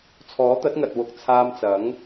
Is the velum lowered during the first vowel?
no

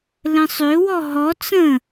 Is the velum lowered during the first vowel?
yes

